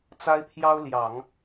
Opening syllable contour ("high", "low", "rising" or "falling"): high